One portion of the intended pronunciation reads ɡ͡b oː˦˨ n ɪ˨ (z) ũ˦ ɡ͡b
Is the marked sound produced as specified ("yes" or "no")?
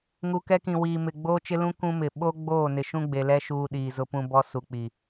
no